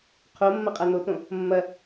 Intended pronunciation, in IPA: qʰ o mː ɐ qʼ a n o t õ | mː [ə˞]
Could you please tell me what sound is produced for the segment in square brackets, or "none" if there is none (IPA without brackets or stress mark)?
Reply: ɐ